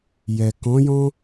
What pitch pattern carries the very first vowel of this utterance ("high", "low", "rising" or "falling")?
low